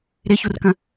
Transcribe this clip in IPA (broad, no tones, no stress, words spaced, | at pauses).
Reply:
ɾɪçurkə̃